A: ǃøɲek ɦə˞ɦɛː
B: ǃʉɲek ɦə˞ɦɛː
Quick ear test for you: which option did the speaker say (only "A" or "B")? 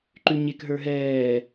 B